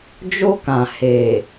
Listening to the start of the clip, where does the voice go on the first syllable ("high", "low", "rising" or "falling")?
high